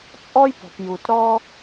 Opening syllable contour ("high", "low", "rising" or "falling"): high